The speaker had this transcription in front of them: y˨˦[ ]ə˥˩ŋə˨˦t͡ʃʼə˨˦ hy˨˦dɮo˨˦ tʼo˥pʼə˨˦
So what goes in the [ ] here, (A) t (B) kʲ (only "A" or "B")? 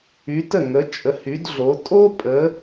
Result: A